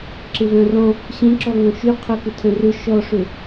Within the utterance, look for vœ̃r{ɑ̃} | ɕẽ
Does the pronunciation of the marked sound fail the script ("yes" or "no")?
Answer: yes